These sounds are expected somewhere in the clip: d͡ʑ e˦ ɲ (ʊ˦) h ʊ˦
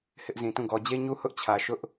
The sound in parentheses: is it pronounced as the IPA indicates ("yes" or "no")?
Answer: no